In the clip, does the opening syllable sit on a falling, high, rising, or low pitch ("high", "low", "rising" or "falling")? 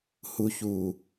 low